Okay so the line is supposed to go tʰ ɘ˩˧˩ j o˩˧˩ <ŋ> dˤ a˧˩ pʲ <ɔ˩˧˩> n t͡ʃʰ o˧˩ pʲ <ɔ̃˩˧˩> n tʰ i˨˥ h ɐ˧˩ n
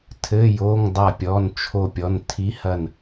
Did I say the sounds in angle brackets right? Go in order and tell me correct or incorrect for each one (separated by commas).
correct, correct, incorrect